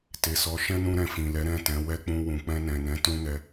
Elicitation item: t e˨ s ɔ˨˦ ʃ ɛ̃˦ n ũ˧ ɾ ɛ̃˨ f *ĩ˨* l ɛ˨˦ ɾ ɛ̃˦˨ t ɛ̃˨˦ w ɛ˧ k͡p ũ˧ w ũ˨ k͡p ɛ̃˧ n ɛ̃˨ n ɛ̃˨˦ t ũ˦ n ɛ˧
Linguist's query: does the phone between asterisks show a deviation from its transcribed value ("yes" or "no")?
no